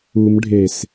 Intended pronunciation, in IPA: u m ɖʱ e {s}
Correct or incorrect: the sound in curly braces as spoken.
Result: correct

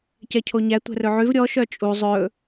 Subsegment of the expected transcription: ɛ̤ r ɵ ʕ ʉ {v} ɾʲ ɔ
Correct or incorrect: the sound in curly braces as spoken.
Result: correct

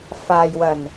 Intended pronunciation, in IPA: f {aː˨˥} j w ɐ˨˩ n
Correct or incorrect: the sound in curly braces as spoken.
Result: incorrect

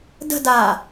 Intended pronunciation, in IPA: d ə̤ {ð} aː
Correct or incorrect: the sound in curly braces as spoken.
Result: incorrect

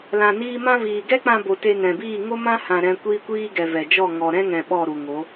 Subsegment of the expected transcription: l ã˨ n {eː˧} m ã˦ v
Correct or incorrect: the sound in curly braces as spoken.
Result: incorrect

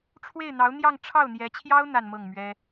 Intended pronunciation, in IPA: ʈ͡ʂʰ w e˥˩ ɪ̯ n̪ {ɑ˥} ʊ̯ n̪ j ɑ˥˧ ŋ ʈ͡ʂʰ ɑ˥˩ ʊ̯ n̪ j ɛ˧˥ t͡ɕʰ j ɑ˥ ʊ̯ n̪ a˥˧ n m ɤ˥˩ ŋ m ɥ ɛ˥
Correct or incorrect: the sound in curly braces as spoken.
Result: incorrect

